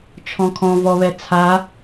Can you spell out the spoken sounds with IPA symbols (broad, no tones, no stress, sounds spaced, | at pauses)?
t͡ʃʰ ɔ̃ kʰ ɔ̃ v ɔ β ɛ t͡sʰ a